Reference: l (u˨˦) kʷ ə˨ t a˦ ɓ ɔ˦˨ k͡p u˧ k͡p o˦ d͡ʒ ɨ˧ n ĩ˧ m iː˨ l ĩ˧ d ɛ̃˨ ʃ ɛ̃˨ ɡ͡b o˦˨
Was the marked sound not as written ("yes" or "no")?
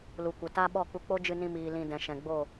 yes